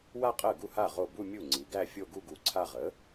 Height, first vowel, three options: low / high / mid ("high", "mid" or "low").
low